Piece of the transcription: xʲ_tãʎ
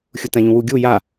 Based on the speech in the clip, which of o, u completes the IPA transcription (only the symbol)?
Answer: u